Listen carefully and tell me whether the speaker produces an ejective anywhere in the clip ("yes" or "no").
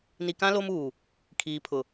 no